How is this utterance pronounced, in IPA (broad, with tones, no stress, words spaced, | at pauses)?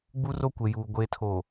ɡ͡bu˦ro˦kʷe˨juː˨ ɡʷe˨tʰo˨